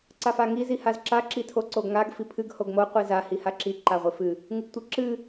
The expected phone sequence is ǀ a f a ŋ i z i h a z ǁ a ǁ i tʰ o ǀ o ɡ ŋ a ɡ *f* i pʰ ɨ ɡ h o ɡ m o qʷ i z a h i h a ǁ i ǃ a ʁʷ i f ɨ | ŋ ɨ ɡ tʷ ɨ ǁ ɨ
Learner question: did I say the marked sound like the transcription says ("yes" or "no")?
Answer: yes